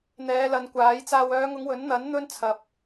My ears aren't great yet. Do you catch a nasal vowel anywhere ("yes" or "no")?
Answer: no